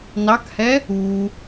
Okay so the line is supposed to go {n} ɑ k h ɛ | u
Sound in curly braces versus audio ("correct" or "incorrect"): correct